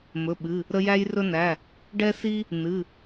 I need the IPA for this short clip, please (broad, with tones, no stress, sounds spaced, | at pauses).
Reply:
m ɵ˩˧˩ ɓ ɨ˩˧˩ | ɾ ə˦ j æ˦ j r ɵ˦ n æ˩˧˩ | ɖ ɛ˦ s i˦ | n ɨ˩˧˩